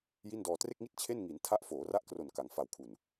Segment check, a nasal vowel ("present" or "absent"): absent